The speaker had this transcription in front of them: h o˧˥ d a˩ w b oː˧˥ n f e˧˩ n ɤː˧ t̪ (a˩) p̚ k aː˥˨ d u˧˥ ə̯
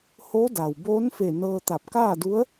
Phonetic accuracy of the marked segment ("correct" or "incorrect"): incorrect